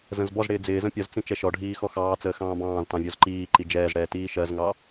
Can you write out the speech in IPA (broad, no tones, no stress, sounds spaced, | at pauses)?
z ə̃ z b ɔ z ɽ ɪː d͡z ɪː z ə̃ pʲ ɒ z t͡s ĩ t͡ʃ ɛ ʃ ɔ ɖʱ iː x ɔ x ɑː t͡s əː x ɑ̃ː b ɑ̃ː z t ɑ̃ vʲ ɔ z ǃ iː ǃ i d͡ʒ ɛː z ɽ ɛː t iː ʃ ɜ z ŋ ɑ